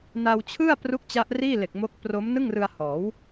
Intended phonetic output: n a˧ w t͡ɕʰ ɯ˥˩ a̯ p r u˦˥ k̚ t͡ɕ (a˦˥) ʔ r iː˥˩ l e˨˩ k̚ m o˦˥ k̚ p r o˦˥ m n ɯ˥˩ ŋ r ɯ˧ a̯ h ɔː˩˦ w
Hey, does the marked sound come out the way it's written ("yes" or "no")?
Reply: yes